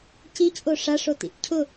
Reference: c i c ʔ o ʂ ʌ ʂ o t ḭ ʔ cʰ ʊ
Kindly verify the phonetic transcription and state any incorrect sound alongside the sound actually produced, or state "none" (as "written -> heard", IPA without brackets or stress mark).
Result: ʌ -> a